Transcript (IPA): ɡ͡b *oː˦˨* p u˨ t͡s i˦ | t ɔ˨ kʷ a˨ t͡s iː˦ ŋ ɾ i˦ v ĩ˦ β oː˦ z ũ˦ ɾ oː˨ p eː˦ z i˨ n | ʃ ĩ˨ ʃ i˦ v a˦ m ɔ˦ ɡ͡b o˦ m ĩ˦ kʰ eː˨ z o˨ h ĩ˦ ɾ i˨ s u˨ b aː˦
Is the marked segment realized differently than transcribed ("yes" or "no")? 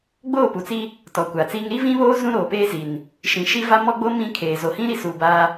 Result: no